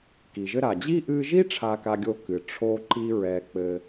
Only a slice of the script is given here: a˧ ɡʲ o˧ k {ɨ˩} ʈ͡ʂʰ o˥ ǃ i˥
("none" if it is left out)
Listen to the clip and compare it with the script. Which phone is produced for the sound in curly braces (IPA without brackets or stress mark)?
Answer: ɨ˩